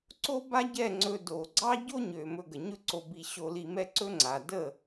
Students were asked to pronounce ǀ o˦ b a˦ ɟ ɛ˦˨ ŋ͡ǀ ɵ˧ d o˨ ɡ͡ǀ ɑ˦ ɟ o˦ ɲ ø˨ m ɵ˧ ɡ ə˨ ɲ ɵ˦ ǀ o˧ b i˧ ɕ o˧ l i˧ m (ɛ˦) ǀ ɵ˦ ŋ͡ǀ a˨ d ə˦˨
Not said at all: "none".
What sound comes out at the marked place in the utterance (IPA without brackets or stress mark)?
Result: ɛ˦